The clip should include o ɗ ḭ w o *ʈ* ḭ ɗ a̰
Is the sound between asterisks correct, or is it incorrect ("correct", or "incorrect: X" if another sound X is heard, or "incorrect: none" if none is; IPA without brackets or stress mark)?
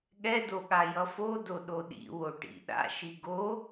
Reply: correct